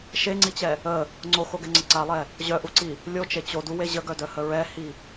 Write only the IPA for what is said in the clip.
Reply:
ʃeŋ͡ǀit͡ɕɛ | ə | ŋ͡ǀoxoɡɛŋ͡ǀə ǀalˠɛ | ʑœʔuǀi | lʲot͡ʃe t͡ɕoduwe ʑəɡœdœhə ɹɛhi

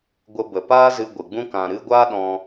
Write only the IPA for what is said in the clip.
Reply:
ɡʷə˧bə˨ paː˦zɨ˧ ɡʷɨ˨ɡ͡bũ˦ kã˨ɾɨ˧ɡʷaː˦ɗɔ̃˧

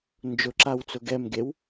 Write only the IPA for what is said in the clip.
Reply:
nd͡ʒʊǁawt͡sʊ ɡɛmɡew

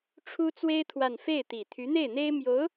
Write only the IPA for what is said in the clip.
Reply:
ʈ͡ʂʰu˥t͡swe˥ɪ̯ t̪ʰwa˥˧n fe˥˩ɪ̯t̪i˨˩ t̪ʰy˧˥n̪e˥˩ɪ̯n̪e˥ɪ̯ mjo˧˥ʊ̯

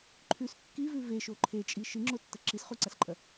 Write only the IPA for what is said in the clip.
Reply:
ǃʰʉs kːivʉ veʃo ǃʰet͡ʃʼi ʃɨŋ͡ǁotːɐ ǁisχuǀasǃʼɐ

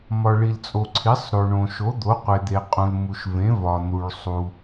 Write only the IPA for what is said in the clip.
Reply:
mɒ˩ɭi˩lt͡sʼo˩ ǀʰi˩˥sˤɾo˩ ɳõ˩ʃo˩˥d̪o˩˥ qʷe˩ d̪e˩qʼũ˩l mu˩ʃvẽ˩˥ vɒ˩n̪u˩ɭsˤu˩

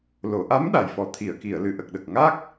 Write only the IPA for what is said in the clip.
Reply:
lo˨˩˨ʔa˧˥m ɗa˨˩jfɔ˨˩t̪ʰi˨˩˨ə̯ki˨˩˨ə̯ lɨ˨˩˨ʔə˨˩k̚ɗə˨˩k̚ ŋa˦˥k̚

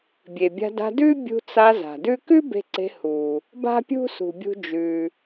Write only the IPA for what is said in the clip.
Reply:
bʲe˩bʲa̤˧da̤˧ dʉ˥bʲṳ˧t͡sa˧ za̤˩dʉ˥ kʉ˥ be̤˧ǀe̤˧ hu˩ | ba̤˥pʲṳ˥sṳ˩bʲṳ˧ d͡ʒʉ˩

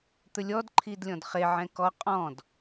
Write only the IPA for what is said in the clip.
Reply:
t̪ɵlʲɔdǃʰid lʲɔ̃dχeʕɛ̃ kɔ qʼɔ̃d

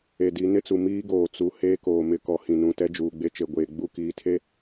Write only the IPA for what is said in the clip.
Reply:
e˨di˨˦nɪ˦t͡su˨ miː˦ɡoː˨ t͡su˨ heː˦koː˨mɪ˦˨ kɔ˨hĩ˨nũ˨ tɛ˦d͡ʒuː˨ɡ͡be˦t͡ʃe˨ ɡʷeː˨ ɡ͡bu˦˨kiː˨tʰe˦

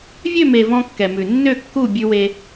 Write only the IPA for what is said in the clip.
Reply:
vʲø˦˨me˨ vɔ̃˦kːɛ˨mʉ˨ nːø˦˨kːu˦˨ bʲʉ˦we˦

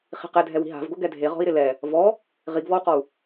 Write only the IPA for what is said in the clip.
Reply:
χi̤qɛdʱɛwi̤ ɦa̤vɡo ɡɛdʱe ʁɔ̤i̯ɾɪlɛ | vɔ | ʁiɡvɔu̯qɔu̯

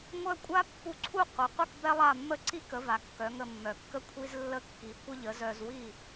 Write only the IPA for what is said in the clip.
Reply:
ŋʷœ˥ kʷʼa˥pːu˧ǀʰu˥˩ qʷe˩qʷə˥˩k bɛ˥lˠa˥˩mːə˥ ǀi˥kə˩˥va˩ kːœ˩˥ŋə˧mːœ˩kːə˥ kʷʰi˥zlːə˥kːi˩˥ kʷə˥ʎə˩˥zœ˧z wi˥˩

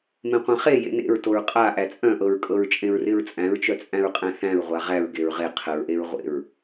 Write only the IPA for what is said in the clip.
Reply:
mẽqʷãχe jḛnḛɹtoɹ qʼa ʔæt͡sʼœ̃ʔɤɹkʼɤɹ t͡ʃʼẽɹrɪɹt͡sʼæ̃ɹt͡ʃœ t͡sʼæ̃ɹqʼæ̃θæ̃ɹ ʁʷaʁæɹ ɡeɹʁe qʰəɹʔeɹ ʁʷḛɹ

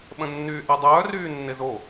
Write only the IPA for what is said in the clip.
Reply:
ɓə̃nːyːʔɛdˤœː ryːnːɪzo

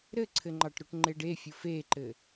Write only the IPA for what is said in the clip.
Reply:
ɾɘǀʰɘŋ͡ǃɑʈ ɾoʈŋ͡ǃeɖefʲof eǃɘ

